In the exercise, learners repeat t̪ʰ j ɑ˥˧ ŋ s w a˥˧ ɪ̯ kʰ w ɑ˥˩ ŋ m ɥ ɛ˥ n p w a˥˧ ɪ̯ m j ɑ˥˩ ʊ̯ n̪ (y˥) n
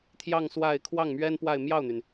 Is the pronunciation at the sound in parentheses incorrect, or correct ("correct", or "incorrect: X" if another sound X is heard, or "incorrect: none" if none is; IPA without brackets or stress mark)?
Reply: incorrect: y˩